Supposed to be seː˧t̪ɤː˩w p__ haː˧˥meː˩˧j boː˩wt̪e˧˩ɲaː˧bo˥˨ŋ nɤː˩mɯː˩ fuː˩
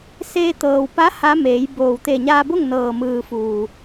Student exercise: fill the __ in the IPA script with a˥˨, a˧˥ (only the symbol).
a˧˥